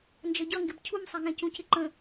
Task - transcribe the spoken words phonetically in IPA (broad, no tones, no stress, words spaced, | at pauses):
nd͡ʒʌɟʌŋɡɪb cʰumsˤɛŋɛ̃ cũcɪǃə̃